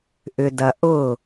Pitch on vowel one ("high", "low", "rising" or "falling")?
low